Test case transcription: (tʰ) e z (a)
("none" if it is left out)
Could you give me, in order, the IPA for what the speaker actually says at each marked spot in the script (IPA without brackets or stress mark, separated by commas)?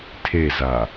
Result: tʰ, a